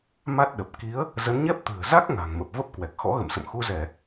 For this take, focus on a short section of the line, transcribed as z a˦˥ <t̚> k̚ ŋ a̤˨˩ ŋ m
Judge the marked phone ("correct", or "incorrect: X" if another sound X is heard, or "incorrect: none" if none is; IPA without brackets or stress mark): incorrect: none